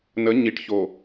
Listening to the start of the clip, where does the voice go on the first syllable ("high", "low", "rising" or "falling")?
rising